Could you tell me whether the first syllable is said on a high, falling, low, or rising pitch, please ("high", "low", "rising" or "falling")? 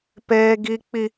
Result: high